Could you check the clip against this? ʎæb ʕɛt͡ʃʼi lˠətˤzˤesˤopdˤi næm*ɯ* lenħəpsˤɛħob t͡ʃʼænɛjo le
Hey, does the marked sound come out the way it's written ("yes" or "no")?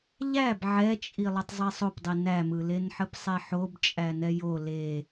yes